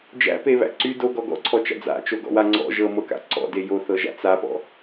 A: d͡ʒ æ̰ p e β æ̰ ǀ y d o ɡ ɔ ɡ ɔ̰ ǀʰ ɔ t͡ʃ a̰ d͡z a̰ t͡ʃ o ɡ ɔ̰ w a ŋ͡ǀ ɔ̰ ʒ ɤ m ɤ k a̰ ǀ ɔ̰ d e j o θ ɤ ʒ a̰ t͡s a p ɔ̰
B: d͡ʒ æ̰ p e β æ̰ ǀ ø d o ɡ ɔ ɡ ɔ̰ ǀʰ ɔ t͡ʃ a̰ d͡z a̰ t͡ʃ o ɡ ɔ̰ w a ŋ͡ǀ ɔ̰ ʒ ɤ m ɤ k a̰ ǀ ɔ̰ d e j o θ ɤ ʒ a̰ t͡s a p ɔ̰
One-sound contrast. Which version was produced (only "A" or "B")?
A